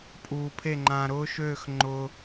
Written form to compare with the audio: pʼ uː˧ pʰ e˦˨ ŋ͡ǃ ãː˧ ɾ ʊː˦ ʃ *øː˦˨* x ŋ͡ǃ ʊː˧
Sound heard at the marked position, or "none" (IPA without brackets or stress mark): øː˦˨